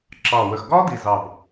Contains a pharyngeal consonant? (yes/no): no